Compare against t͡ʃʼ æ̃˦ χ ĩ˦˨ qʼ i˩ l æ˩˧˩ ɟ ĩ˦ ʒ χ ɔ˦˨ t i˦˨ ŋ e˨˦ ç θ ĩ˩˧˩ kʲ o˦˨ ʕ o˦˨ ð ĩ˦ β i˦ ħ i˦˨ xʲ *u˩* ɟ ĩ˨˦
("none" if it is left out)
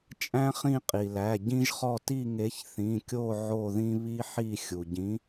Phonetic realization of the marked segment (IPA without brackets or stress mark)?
u˩